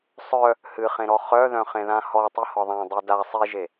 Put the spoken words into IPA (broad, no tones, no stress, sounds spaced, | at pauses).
sˤ œ | h ɨ χ ẽ ɾ ɔ χ œ ð œ̃ χ ẽ ð ã h ɔ tˤ ɨ h ɒ ðˤ ã dˤ i d a sˤ i ʒ e